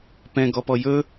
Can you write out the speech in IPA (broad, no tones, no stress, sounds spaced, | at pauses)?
p ɛ̃ ɡ ɔ p ɔ j ɵ